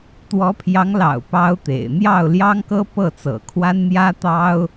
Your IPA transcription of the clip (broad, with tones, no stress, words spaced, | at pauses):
t̪wɔ˧˥pʰjɑ˧˥ŋlɑ̰˨˩ʊ̯ pɑ˥ʊ̯t̪ḛ˨˩ɪ̯ n̪jɑ˥˩ʊ̯ljɑ˥ŋkɤ˥pɤ˥˩ t͡sɤ̰˨˩kʰwa˥nn̪jä˥t̪ɑ˥ʊ̯